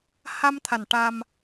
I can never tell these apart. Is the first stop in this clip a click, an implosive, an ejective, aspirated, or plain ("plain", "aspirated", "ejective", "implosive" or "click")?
aspirated